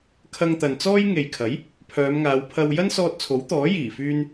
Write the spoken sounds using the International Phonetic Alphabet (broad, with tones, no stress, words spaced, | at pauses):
kʰɐ˧ŋt̪ɐ˨nt͡sɔː˥j ŋe˨jkʰɐ˨˥j | pʰœː˨˧mŋaː˨˧wpʰɐ˧w jɐ˥nsɔː˧t̚t͡sʰo˨˥wt̪ɔː˨˥ jiː˨˩fyː˧n